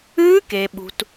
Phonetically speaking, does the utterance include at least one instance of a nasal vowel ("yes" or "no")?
no